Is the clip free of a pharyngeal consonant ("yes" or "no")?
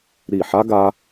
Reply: no